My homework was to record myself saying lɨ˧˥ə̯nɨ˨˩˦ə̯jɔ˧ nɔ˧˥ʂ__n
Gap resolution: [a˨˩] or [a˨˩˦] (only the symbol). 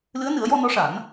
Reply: a˨˩˦